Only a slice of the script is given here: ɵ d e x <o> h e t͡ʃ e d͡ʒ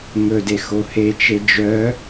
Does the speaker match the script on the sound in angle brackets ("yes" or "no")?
yes